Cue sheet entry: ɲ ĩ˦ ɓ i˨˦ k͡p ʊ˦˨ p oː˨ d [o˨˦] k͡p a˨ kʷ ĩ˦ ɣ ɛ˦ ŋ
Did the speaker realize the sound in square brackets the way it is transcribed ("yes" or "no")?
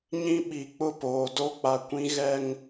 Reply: no